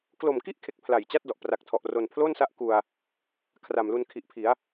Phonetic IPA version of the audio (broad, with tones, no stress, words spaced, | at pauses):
klo˨˩mki˥˩ʔkʰe˨˩k̚ pʰla˨˩jt͡ɕa˥˩t̚dɔ˨˩ʔ pra˨˩k̚tʰɔ˨˩ʔ ro˧n pʰloː˥˩nsa˦˥ʔ ku˧a̯ | kʰra˨˩mlu˧n kʰi˨˩ʔpʰi˩˦a̯